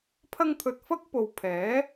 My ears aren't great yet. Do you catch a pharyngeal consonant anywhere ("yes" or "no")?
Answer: no